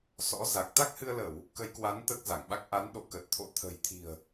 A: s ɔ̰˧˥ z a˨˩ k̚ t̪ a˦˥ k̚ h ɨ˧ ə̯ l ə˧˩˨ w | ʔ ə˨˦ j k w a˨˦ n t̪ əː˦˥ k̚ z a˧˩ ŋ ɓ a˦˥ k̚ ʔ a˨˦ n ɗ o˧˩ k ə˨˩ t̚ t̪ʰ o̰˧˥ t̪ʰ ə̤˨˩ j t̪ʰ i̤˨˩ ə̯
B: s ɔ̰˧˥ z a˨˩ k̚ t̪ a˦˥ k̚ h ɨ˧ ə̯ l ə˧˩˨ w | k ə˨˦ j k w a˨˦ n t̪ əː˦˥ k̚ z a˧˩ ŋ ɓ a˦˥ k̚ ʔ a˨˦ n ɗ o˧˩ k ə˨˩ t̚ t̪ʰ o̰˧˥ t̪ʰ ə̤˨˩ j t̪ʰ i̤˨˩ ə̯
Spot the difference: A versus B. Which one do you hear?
B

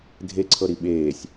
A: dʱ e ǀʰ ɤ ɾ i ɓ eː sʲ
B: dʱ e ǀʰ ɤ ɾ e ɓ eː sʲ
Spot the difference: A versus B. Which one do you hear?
A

